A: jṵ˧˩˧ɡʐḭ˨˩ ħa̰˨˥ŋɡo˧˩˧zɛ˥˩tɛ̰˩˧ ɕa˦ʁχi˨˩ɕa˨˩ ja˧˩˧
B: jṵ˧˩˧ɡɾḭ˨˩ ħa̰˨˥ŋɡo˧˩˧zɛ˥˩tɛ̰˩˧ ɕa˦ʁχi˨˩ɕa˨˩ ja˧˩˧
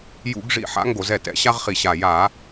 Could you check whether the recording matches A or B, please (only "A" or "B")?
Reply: A